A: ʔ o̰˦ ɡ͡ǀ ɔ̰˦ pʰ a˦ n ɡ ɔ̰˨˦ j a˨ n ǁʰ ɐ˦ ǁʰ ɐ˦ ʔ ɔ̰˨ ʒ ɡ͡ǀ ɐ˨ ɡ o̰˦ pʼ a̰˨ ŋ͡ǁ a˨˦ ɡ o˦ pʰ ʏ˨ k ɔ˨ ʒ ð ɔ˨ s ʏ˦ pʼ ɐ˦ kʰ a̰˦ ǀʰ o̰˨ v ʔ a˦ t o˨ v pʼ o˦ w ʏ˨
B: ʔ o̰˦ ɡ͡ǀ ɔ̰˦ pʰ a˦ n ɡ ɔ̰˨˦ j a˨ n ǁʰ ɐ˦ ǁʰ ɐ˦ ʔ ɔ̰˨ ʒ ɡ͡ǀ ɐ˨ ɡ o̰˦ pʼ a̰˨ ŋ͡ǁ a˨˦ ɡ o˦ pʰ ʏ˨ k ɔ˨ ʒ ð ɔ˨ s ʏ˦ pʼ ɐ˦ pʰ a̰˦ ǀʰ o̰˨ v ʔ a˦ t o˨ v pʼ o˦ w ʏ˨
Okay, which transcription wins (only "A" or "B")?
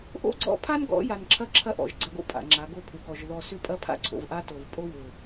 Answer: B